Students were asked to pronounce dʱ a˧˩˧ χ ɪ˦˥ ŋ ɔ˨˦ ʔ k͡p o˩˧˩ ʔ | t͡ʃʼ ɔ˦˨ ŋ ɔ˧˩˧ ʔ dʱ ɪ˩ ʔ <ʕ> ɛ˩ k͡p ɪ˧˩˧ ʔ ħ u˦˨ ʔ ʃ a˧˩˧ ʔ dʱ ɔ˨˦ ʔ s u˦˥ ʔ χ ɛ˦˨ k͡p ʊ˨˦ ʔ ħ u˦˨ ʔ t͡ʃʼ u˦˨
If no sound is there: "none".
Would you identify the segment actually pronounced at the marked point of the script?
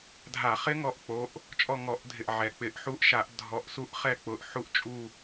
ʕ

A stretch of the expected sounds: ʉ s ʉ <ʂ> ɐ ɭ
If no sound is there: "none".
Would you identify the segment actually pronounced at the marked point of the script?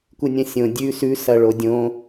s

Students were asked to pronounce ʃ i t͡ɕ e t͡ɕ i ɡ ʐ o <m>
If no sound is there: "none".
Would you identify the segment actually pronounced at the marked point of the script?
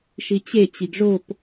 p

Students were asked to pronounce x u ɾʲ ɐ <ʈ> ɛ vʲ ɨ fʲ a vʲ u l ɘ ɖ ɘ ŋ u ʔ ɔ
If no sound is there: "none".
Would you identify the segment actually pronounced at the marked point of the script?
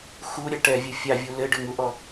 ʈ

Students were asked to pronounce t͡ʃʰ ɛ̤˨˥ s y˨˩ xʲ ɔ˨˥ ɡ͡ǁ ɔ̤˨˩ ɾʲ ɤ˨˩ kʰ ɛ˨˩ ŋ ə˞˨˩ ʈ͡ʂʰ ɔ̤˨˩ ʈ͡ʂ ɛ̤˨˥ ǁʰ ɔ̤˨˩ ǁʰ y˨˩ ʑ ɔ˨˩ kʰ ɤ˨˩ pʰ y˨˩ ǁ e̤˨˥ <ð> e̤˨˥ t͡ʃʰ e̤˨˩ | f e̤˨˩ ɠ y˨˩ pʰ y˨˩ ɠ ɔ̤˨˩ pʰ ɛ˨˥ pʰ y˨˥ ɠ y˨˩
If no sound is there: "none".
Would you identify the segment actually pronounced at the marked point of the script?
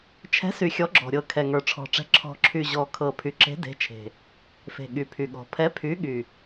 d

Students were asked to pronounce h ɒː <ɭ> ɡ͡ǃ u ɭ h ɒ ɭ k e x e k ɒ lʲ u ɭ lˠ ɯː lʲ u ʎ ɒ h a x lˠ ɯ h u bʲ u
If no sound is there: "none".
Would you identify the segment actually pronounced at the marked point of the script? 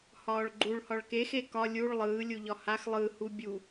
ɭ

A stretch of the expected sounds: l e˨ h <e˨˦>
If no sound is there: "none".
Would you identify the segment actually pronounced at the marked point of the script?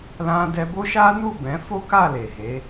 e˨˦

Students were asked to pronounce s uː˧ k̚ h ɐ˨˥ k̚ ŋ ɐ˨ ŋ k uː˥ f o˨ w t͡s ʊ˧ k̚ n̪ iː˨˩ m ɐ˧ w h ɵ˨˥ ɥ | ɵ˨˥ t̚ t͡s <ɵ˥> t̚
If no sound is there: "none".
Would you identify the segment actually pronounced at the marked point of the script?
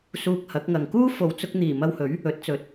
ɵ˨˥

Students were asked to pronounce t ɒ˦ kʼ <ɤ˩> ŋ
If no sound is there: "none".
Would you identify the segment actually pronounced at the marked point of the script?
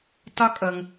ɤ˩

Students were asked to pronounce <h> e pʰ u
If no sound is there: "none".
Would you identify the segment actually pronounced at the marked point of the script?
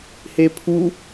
h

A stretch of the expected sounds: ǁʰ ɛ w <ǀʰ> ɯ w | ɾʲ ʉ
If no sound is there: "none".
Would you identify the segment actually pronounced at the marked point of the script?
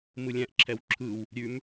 ǁʰ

